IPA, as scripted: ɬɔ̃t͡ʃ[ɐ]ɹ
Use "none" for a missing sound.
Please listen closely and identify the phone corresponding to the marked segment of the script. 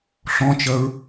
ɐ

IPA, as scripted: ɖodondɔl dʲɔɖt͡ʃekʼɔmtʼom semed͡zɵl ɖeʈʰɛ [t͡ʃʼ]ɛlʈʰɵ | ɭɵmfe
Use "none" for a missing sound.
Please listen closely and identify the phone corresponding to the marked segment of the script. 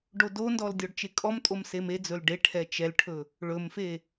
t͡ʃ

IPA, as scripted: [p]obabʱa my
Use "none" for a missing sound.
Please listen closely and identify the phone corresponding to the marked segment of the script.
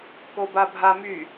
k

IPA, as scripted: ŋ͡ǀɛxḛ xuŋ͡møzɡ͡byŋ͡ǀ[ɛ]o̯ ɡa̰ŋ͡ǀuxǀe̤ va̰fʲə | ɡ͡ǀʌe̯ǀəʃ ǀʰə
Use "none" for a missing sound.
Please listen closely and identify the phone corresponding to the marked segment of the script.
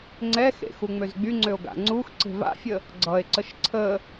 ø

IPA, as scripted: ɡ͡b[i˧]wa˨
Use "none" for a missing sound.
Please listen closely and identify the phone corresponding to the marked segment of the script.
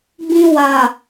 ĩ˧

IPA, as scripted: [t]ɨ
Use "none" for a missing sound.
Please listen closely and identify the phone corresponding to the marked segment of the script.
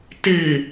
t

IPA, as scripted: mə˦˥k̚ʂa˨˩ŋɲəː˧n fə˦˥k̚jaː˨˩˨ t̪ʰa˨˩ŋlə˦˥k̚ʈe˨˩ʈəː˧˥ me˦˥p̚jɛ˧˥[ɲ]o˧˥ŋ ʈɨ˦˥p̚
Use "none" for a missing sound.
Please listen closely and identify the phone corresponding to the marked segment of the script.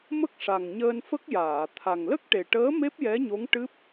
ɲ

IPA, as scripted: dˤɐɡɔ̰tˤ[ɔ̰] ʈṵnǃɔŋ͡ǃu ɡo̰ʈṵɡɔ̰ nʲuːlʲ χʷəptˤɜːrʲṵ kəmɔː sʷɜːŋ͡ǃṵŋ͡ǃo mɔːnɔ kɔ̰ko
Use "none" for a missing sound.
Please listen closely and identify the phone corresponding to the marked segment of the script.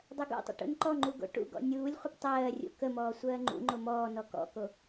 ə̰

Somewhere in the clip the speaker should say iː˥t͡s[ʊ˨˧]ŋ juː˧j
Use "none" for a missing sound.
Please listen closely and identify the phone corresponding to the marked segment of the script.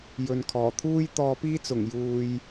ʊ˨˩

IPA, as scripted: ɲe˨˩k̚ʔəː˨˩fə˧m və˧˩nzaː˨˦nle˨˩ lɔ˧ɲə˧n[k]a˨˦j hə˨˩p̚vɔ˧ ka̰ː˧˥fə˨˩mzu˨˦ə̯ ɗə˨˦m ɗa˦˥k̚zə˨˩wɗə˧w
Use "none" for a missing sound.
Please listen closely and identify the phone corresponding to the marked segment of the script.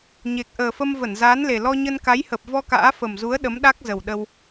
k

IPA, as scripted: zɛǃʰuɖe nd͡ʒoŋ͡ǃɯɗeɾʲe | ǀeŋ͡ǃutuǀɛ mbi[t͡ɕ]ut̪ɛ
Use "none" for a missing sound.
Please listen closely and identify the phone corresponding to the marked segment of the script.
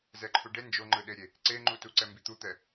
t̪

